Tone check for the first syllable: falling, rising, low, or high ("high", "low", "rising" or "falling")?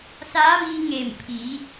rising